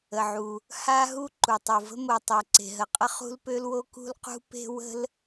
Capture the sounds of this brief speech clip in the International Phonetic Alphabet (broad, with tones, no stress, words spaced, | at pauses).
ə˩ʕu˩ | ha˥ɦu˥ ǃu˩tˤu˩və̤˥ mo˩tˤɛ˩ ǀe̤˩ɦə˩qʼə˥ χṳ˥lpø˥lwo˥ kṳ˥lqṳ˥ pe̤˥ wə̤˥l